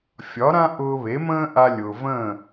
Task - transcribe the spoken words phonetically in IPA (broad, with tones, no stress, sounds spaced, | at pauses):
fʲ ɒ˩˥ ɾ ã˥ ʔ ʊː˧ β e˩˥ m ə̃ː˥ ʔ a˧ lʲ ʊː˩ v ə̃ː˥˩